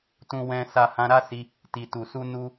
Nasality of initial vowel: nasal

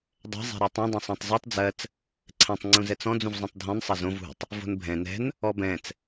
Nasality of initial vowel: oral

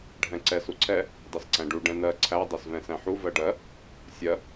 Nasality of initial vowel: nasal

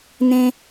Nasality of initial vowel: nasal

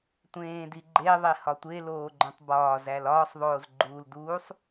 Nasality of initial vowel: nasal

